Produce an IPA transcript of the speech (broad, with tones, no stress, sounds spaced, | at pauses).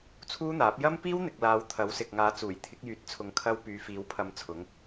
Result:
t͡sʰ uː˥ n̪ aː˨˥ p̚ j ɐ˥ m p iː˥ w n̪ ɪ˨ k̚ l aː˨˧ w t̪ʰ ɐ˨˥ w s ɪ˨ k̚ ŋ aː˨˧ t͡s uː˨˩ j t̪ʰ ɪ˨˥ k̚ j yː˧ t̚ t͡sʰ ʊ˧ ŋ kʰ ɐ˥ w p yː˨˧ f iː˨˧ w pʰ ɐ˧ m t͡sʰ ʊ˨˥ ŋ